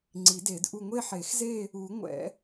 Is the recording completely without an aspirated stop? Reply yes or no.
yes